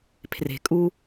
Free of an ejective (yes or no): no